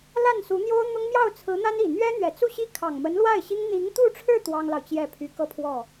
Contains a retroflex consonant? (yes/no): yes